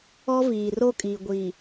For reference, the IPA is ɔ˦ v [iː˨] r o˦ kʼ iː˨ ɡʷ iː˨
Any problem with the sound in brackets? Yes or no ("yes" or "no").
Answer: no